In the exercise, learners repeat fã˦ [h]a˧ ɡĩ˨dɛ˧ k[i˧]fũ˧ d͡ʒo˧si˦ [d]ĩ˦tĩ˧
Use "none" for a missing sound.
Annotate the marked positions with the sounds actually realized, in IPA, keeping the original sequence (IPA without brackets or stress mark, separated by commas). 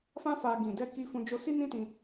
f, i˧, n